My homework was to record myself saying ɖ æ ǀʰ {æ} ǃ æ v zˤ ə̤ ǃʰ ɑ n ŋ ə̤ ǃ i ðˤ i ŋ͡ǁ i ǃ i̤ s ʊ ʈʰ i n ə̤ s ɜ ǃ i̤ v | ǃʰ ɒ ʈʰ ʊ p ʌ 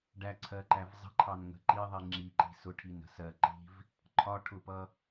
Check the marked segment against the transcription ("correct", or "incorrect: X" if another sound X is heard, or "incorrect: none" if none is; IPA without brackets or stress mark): incorrect: ɜ